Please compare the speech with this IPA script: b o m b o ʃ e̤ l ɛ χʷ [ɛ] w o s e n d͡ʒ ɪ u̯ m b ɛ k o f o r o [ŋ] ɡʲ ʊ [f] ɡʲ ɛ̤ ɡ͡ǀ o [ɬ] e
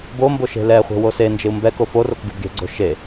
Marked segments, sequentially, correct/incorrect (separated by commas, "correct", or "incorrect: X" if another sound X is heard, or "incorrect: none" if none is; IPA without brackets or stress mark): incorrect: ɛ̤, incorrect: k, incorrect: b, incorrect: ʃ